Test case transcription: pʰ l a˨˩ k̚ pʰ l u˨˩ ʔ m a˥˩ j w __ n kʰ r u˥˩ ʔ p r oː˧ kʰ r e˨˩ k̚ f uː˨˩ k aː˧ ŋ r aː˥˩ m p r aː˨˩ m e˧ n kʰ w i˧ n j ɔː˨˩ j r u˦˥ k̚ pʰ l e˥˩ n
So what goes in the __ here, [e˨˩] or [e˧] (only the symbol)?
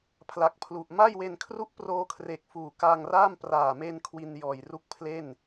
e˧